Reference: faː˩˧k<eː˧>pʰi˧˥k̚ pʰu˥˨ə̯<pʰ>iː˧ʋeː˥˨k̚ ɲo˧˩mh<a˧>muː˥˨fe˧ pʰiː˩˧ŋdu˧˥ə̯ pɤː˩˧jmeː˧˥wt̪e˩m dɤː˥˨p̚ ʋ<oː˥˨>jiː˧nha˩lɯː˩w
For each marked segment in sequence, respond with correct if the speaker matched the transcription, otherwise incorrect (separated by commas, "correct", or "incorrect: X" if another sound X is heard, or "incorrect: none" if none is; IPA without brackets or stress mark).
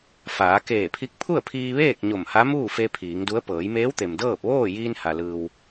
incorrect: eː˧˩, correct, incorrect: a˧˥, correct